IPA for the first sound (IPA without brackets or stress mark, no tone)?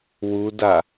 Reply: w